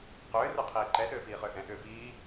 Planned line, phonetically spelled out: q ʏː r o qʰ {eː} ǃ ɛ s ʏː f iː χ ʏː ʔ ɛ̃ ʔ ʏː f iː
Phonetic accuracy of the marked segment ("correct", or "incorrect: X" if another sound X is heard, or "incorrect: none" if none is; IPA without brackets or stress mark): incorrect: iː